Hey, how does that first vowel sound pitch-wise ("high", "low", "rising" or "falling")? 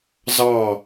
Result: falling